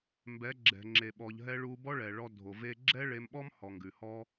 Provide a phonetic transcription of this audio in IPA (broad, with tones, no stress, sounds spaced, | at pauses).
m b ɛ˨˦ ɡ͡ǁ ɛ̤˨ ŋ͡ǁ e˨ ɓ ɔ˨ ʎ ɦ ɛ˧ ɭ u˧ b ɔ˦ ɭ ɛ˨ ɭ ɔ˧ dʱ o˨ v e˦ ɡ͡ǁ ɛ˦ ɭ e˧ m ɓ ɔ˦ m h ɔ˨ ŋ ɡ ʉ˨ h ɔ˦